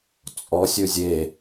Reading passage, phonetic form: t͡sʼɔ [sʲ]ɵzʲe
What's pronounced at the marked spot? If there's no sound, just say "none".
sʲ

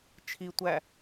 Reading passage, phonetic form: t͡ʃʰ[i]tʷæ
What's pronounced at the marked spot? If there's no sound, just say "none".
i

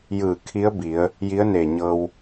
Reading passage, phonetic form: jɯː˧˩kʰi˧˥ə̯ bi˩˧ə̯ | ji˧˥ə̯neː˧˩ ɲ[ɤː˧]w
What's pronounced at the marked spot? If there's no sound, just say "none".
ɤː˧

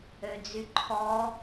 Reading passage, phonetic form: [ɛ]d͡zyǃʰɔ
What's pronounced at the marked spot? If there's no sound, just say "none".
ø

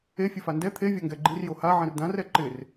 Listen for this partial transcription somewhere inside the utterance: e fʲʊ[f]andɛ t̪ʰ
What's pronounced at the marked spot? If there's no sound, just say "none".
f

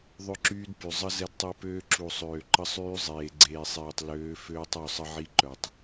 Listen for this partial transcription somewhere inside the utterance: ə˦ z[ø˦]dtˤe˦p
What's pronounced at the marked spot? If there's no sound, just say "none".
ɛ˦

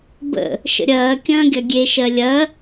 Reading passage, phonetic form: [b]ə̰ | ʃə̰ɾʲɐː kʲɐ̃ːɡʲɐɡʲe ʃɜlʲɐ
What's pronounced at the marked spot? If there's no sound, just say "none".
b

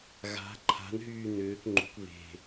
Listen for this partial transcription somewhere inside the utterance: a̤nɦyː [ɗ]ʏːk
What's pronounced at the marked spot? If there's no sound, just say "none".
n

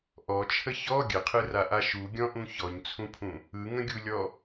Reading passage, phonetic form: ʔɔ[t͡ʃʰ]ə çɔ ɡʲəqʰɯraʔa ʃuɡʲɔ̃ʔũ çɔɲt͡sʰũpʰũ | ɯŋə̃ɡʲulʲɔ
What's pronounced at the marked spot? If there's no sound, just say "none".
t͡ʃʰ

